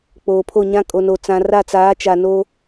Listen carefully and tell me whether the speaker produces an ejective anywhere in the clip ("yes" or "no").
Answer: yes